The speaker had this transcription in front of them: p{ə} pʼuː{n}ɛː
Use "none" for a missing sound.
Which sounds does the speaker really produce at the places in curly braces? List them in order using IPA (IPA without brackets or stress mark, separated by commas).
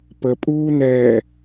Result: ə, n